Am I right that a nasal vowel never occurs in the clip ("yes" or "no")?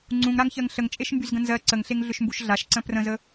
no